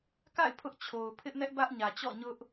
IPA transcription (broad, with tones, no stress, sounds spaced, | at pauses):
k a̰˦˨ ɪ̯ pʰ ʊ˦ ʔ t͡ɕʰ o˨ ʊ̯ pʰ ɪ˦ ʔ n ɛ˦ ʔ b ä˦ ʔ ɲ ä˨ t͡ɕ ɔ̰˦˨ ɲ ʊ˦ ʔ